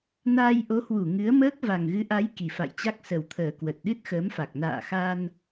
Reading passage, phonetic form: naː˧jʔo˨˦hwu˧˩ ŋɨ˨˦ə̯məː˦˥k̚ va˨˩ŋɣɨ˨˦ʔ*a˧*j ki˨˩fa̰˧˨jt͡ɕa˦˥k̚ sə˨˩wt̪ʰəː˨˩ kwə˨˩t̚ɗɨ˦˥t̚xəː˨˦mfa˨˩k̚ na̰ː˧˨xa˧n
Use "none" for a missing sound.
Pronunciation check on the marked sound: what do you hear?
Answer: a˨˦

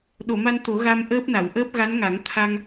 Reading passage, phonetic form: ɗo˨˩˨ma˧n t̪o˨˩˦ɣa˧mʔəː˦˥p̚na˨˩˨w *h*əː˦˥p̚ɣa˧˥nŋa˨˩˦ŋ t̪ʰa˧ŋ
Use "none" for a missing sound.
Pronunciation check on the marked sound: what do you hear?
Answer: ʔ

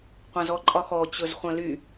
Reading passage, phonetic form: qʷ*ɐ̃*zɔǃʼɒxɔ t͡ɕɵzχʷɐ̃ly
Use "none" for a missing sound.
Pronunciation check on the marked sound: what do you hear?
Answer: ɐ̃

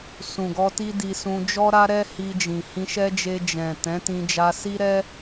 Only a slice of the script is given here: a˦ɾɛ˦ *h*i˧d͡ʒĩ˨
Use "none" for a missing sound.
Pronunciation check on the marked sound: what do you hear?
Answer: h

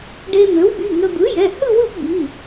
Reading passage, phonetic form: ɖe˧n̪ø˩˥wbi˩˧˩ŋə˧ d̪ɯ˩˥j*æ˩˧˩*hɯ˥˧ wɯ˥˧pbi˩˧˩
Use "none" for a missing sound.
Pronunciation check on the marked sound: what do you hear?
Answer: ɛ˩˧˩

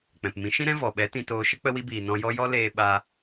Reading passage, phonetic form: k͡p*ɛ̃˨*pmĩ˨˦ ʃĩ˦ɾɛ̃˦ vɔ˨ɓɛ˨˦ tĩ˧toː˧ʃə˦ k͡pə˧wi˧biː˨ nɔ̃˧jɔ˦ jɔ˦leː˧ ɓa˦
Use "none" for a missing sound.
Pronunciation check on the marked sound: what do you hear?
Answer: ɛ̃˨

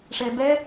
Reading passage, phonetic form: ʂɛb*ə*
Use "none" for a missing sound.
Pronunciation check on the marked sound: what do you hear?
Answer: ɛ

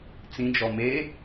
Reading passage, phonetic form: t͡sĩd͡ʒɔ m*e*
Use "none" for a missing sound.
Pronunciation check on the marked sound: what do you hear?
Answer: e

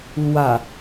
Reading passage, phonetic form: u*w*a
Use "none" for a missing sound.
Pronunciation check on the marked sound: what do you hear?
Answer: w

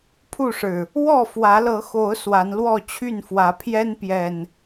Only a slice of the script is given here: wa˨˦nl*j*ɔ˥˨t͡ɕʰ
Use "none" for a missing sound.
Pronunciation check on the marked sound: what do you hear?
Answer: w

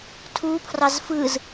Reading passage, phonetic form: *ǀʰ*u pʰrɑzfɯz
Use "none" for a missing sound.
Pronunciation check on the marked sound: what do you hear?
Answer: tʰ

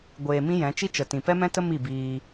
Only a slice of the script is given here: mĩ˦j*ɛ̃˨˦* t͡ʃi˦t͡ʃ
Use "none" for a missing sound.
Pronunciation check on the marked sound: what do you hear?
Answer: ɛ̃˨˦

